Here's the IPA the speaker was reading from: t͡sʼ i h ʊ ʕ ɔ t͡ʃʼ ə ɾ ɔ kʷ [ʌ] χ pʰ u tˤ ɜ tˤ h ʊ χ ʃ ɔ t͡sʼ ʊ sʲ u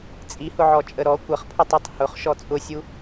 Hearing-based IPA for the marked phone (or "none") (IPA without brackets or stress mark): ʌ